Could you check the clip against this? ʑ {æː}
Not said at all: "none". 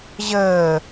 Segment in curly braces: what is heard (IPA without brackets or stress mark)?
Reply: əː